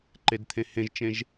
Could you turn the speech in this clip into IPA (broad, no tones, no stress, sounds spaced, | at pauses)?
ǃ e d t̪ʰ ẽ h ẽ ʒ t͡ʃ ẽ ʒ